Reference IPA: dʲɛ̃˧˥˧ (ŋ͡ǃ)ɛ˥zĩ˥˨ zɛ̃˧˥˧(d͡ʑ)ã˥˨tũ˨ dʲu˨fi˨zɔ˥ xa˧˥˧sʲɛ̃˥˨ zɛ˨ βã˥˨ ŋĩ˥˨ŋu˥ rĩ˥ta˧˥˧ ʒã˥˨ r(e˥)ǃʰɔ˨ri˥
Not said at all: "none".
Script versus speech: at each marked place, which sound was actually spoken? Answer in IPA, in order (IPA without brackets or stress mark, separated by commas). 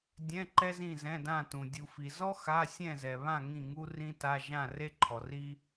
ǃ, d, e˥